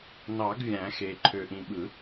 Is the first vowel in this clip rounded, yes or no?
no